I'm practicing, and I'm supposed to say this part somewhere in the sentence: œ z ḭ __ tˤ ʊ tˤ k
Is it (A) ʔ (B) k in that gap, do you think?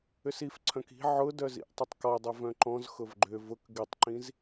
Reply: A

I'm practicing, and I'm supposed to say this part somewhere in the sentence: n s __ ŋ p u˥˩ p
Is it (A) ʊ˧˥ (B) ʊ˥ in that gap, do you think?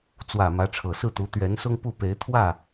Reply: B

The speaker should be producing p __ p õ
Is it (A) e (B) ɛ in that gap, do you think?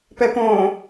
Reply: B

